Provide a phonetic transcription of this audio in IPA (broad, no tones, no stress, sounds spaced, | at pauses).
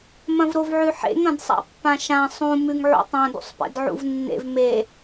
m ɐ̃ v ɾ o v ʕ ʉ ħ ḛ ŋ ɐ̃ d sˤ a̰ pː ã ʃ ã sˤ ũ m ʉ ŋ ʕ ṵ tˤ ã d ṵ sˤ p ḛ d ʕ ṵ v nː ḛ v m e